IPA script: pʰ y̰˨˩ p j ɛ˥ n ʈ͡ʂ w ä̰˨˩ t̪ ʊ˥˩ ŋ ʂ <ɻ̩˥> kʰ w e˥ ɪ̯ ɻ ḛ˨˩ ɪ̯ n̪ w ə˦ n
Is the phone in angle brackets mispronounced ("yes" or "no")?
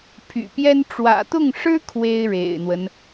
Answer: no